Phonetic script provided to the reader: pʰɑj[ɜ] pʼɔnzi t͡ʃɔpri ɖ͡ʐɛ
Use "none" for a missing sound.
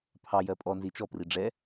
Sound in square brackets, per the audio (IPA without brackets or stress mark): ɜ